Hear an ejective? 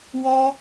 no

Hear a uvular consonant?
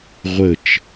yes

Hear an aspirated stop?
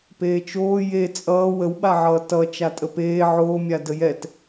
no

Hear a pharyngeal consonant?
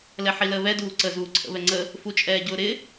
yes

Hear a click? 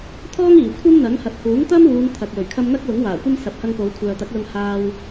no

